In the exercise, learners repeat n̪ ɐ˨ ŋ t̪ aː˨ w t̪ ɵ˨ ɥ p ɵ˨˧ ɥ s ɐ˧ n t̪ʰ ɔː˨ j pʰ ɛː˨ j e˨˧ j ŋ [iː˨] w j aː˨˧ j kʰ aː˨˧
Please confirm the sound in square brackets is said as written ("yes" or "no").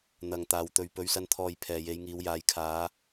no